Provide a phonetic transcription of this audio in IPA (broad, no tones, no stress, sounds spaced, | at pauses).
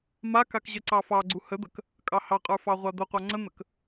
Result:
m a k a k ʑ ə ǀ ɑ f ɑ ɡ͡ǀ u h ə d̪ ə k | kʼ ɑ h ɑ qʼ ə˞ f ɑ ʁʷ a d̪ ə qʷ a ŋ͡ǀ ə n̪ ə k